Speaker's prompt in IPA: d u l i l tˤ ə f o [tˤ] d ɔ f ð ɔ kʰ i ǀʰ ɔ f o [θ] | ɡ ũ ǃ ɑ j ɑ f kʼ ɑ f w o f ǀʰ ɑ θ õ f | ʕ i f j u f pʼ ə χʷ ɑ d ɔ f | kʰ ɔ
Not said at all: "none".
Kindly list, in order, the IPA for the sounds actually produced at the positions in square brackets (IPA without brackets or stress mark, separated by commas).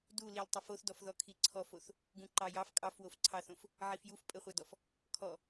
θ, θ